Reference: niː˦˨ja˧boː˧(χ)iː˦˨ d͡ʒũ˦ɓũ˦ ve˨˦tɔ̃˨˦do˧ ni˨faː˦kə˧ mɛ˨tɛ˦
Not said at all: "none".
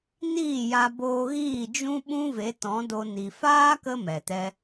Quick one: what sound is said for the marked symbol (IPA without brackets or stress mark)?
ɣ